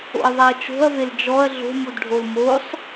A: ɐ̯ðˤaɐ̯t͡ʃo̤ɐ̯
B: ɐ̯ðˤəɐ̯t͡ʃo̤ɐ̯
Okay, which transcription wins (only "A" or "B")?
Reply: A